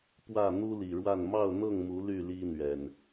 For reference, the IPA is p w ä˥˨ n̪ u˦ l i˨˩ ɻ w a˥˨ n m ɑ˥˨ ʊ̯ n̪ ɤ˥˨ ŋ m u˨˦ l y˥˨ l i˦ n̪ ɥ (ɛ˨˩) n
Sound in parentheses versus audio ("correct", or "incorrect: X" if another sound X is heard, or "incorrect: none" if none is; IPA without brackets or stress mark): correct